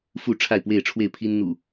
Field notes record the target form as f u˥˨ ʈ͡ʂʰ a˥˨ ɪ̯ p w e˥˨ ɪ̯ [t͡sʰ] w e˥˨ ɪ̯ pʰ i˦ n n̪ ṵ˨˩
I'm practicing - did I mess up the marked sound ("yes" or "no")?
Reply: yes